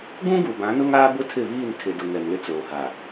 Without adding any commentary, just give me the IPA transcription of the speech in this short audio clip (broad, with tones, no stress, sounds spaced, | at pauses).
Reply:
ɡ ũ˦ ɡ u˨ b ã˨˦ n ʊ˦ ŋ aː˦ b ʊ˦ tʰ ɪ˦˨ β iː˦˨ n tʰ ɪ˨ d ʊ˨ ŋ ɛ˨ m l ɪ˦ t͡s oː˨ h a˨